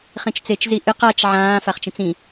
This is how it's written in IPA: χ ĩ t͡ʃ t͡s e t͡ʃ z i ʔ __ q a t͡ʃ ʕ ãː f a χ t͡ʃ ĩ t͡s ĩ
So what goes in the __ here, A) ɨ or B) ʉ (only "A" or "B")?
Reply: A